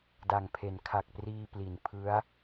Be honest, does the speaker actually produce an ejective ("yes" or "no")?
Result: no